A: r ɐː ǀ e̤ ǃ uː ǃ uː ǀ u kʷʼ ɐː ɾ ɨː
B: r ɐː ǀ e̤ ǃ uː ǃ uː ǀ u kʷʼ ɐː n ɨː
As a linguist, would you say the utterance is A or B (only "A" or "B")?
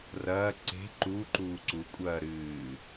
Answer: A